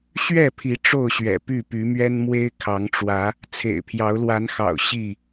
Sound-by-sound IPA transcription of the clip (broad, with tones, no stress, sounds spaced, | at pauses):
ɕ ɥ ɛ˥˨ pʰ i˨˦ ʈ͡ʂ o˥˨ ʊ̯ ɕ ɥ ɛ̰˨˩ p y˥˨ p y˨˦ m ɥ ɛ˦ n m w e˦ ɪ̯ kʰ ɑ˨˦ ŋ ʈ͡ʂ w ä˨˦ | t͡sʰ ḛ˨˩ ɪ̯ pʰ j ɑ˨˦ ʊ̯ l w a˨˦ n x ɑ̰˨˩ ʊ̯ ɕ i˥˨